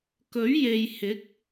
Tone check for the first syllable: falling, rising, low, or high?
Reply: rising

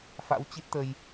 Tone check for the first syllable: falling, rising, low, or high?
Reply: rising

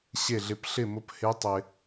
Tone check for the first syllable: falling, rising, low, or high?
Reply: falling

